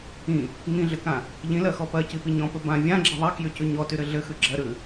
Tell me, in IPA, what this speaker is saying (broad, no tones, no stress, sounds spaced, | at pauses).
ĩ | ŋ ĩ ɮ ɘ k ã | ʎ ĩ l ɜ x ɔ p ɜ c i p i ɲ ɔ̃ p ɘ b ã vʲ ã ɡ͡ǁ ɘ ðˤ ɜ k j y c ʉ ɲ ɔ t y ɾ ɘ ɮ ɘ x ʉ ɡ͡ǁ ɜ ɾ ʉ